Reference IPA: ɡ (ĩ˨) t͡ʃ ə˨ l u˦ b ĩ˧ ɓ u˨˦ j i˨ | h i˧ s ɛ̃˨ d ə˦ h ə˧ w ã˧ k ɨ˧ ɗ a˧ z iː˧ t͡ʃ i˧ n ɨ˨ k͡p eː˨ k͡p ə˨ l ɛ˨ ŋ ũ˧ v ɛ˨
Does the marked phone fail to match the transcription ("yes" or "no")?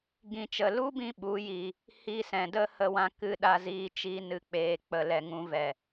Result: no